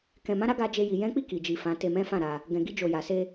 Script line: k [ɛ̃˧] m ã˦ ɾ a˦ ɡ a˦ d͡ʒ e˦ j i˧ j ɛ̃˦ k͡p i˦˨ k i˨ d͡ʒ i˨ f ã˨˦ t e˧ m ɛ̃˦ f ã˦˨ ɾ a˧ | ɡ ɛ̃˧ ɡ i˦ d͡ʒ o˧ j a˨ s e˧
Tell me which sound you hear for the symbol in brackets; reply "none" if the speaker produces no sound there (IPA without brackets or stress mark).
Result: ɛ̃˧